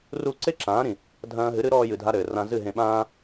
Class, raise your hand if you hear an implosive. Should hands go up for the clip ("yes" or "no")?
yes